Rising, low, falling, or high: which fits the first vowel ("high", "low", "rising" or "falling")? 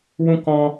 high